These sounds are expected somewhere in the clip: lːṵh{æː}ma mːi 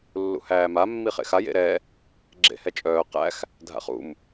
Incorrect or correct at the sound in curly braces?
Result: correct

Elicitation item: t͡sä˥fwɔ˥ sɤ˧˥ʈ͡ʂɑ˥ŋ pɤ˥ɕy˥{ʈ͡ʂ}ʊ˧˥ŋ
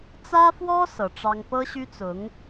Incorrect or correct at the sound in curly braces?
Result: incorrect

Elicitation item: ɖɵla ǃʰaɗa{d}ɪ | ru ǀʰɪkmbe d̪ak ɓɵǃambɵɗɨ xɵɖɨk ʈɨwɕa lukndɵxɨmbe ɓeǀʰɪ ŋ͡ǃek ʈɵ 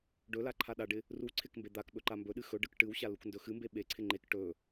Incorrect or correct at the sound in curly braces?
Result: incorrect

